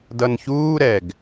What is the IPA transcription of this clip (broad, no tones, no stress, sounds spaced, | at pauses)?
d ʌ n ç uː ɾ ɛ ɡ